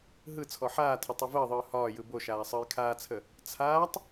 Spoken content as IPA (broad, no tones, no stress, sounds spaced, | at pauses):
ɦ ɯ t͡sʰ ɔ ħ aː tʰ ə tˤ ɵ v əː ðˤ ɯː h ɒː j ɯ b o ʃ aː sˤ əː j kʰ aː t͡sʰ ə | t͡sʰ aː tˤ